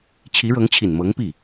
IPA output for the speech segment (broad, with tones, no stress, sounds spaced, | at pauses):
t͡ɕʰ i˧˥ ɻ ɤ˧˥ ŋ t͡ɕʰ i˨˩ n m ɤ˧˥ ŋ p i˥˩